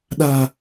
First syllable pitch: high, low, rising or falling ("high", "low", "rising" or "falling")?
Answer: low